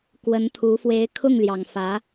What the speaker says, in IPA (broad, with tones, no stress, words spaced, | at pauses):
kwə˧˥nt̪ʰu˧˥ fwe˧˥ɪ̯kʰʊ˥˩ŋljɑ˨˩ŋfä˧˥